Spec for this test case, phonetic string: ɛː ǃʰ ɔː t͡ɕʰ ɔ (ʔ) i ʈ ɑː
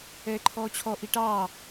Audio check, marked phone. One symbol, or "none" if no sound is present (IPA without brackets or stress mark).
ʔ